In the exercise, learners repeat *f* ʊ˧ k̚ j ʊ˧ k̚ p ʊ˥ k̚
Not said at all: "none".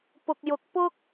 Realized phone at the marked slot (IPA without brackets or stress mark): p